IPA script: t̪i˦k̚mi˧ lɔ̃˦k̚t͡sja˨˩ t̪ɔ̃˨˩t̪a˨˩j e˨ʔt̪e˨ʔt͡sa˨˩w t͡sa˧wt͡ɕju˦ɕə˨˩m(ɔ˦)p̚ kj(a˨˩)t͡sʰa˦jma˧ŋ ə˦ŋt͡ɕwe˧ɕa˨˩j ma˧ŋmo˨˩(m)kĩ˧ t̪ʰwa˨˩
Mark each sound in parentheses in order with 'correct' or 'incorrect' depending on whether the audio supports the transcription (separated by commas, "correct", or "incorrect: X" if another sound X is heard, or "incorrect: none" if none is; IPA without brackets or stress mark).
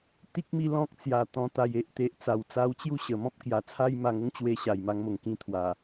incorrect: ɔ̃˦, correct, incorrect: ŋ